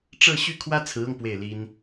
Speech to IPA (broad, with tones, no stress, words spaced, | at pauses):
ʈ͡ʂɤ˥˧ɕy˥˩ kʰwä˥t͡sʰɹ̩˧˥ɤ˧ŋ pwe˥˩ɪ̯li˥n